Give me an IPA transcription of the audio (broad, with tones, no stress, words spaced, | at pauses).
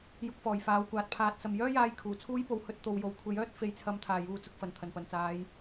jʊ˧k̚fɔː˨˩jfaː˨˧wkʷaː˨t̚ pʰaː˨t̚sɐ˨mjœː˥jaː˧j kʰuː˨˩t͡sʰuː˥jpo˨˧w hɵ˧t̚t̪o˨wjo˨w kʷʰe˨˥jœː˥t̚ fe˨˥jt͡sʰɐ˨˥mt̪ʰaː˨˩ juː˨t͡sʊ˨˥k̚fɐ˨˩n t̪ʰɐ˨˩npɐ˨˩nt͡saː˨˧j